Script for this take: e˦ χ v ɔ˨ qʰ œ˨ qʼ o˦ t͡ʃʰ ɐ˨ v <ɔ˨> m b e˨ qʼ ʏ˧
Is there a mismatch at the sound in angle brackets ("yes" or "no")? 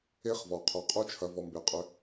no